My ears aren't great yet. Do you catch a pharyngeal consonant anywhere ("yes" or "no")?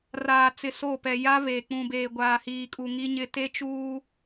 no